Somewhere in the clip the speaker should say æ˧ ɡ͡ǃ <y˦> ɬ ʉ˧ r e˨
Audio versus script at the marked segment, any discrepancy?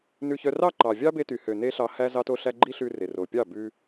yes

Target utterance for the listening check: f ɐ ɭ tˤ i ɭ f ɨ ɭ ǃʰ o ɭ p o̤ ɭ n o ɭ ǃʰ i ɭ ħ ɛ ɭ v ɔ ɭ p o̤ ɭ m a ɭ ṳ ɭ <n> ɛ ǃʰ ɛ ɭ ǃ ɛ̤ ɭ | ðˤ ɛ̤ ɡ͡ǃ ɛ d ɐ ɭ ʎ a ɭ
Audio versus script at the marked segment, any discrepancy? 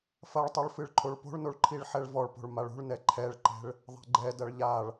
no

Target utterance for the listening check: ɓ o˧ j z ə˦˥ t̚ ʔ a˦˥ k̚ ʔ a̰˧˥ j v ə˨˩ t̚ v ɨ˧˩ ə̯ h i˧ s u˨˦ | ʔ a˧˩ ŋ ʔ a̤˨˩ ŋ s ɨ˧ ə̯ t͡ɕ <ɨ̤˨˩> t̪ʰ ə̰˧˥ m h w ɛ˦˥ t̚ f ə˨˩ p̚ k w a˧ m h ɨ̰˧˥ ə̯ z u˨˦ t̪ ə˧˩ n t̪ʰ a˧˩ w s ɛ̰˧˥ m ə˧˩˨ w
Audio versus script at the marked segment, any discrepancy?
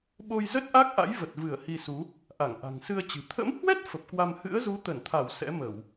no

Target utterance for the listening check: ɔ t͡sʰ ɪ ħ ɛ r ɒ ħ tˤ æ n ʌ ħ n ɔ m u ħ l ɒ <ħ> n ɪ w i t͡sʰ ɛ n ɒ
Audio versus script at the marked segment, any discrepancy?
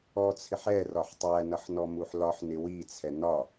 no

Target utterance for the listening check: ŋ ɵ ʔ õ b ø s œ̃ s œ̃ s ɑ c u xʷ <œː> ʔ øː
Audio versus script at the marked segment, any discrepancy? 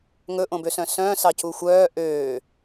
no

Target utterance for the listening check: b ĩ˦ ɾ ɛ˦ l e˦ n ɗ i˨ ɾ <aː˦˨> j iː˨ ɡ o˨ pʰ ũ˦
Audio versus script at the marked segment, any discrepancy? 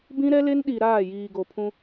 no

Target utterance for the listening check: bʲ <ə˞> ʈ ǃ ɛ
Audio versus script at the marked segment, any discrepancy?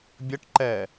yes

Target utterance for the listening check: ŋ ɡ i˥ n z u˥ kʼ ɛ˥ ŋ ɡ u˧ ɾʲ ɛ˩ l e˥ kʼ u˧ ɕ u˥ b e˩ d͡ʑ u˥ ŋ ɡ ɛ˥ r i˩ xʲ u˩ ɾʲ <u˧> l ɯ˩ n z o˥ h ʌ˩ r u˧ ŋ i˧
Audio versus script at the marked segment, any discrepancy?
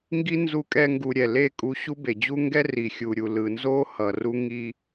yes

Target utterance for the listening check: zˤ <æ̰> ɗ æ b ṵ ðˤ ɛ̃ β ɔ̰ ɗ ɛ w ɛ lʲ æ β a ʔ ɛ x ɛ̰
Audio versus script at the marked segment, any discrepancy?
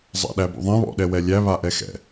yes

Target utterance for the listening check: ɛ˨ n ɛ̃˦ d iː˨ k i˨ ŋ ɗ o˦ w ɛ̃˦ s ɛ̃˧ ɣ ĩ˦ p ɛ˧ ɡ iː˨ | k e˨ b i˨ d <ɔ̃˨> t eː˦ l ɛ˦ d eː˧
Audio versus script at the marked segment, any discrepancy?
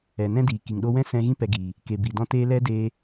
yes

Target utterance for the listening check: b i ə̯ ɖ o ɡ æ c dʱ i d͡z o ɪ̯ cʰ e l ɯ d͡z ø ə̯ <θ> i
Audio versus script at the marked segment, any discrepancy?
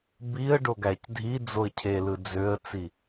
yes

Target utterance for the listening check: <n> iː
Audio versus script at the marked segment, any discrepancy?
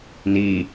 no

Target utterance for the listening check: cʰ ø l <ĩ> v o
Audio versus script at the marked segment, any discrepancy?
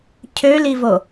yes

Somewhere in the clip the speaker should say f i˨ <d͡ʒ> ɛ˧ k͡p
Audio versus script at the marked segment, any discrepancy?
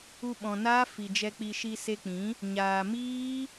no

